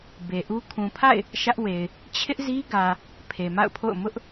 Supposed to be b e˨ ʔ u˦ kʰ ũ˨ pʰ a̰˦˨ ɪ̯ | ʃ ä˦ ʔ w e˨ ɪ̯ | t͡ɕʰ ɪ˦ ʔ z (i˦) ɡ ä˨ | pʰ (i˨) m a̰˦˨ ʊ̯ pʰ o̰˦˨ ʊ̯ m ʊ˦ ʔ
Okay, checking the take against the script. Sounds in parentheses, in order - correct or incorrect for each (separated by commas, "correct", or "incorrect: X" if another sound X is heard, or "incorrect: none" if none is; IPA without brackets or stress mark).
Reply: correct, incorrect: e˨